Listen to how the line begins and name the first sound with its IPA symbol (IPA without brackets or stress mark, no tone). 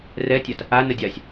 r